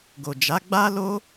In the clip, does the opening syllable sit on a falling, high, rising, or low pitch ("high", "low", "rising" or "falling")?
low